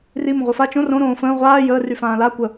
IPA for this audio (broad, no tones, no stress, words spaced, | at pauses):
rimə̃ʁʷəː fa t͡ʃõ rõɾõː fə̃ː ʁʷaː jəːryfãː la kʷə